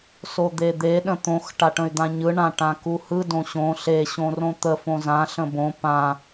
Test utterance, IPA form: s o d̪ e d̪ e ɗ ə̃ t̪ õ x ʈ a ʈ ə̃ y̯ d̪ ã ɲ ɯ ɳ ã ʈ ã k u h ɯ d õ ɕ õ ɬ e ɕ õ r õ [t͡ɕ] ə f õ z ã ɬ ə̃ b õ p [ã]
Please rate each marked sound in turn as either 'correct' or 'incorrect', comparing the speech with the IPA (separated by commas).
incorrect, correct